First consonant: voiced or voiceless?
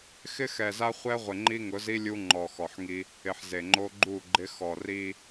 voiceless